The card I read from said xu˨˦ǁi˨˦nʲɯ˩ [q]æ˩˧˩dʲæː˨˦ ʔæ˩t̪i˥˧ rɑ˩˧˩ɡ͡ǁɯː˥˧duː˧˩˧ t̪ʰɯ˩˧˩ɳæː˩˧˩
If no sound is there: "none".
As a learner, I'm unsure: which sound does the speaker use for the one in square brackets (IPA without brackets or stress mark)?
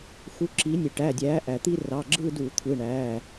ʈ